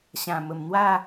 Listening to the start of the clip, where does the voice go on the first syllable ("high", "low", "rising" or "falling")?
low